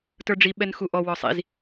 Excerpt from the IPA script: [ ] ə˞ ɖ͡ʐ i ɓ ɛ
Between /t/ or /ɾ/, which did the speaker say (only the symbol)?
t